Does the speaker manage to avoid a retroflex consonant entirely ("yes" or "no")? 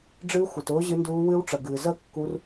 no